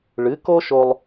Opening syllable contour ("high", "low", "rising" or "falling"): rising